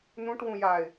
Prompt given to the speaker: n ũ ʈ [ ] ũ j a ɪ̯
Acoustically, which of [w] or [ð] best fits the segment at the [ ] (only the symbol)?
w